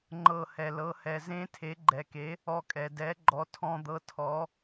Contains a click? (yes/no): yes